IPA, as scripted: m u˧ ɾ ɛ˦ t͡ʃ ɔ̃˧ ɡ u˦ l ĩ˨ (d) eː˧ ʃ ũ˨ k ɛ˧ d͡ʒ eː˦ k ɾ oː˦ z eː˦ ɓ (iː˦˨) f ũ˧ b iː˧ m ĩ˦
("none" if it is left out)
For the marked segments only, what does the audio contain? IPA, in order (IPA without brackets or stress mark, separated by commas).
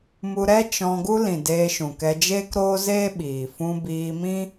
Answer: d, iː˨